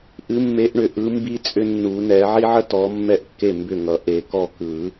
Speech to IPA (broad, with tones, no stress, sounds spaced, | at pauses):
ʔ ɨ˨˦ mː e˨˦ ʔ ɳ ʏ˨ ʔ ɯ˨˦ m b i˦ t͡sʼ ʏ˦ nː u˨˩˦ n ɛ˨˦ ʕ i˦ ʕ ə˦ t ɔ˨˦ mː ɛ˥˩ ʔ kː e˥˩ m b ʏ˥˩ ŋ ʌ˨˩˦ ʔ e˨˩˦ k ɔ˥˩ k ɯ˨˩˦